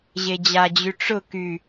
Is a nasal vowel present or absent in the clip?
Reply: absent